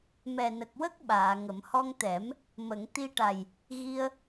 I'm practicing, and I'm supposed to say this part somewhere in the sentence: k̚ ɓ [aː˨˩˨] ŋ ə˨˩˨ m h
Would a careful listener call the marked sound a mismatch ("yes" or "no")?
no